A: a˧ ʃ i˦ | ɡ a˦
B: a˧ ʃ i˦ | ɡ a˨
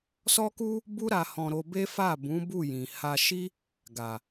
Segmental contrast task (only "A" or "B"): B